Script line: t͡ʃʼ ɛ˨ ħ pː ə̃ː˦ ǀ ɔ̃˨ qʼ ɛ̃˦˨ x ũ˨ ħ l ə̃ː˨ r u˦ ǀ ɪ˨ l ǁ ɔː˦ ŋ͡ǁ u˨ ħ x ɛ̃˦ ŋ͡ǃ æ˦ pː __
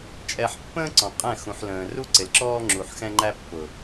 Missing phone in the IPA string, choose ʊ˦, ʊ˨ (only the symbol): ʊ˨